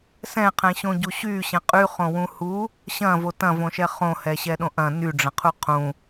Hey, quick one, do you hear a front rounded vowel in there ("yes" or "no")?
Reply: yes